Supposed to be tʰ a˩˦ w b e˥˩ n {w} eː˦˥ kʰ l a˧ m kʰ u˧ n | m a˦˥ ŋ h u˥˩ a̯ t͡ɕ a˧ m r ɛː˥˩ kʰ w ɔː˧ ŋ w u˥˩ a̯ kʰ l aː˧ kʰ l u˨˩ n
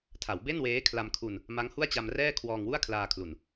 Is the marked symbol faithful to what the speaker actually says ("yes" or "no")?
yes